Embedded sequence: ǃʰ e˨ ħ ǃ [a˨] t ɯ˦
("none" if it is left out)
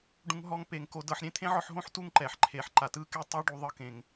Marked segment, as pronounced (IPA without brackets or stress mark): a˨